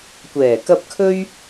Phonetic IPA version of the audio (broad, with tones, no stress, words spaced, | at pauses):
kʷɛː˨˩kɐ˧p̚ kʰɵ˥ɥ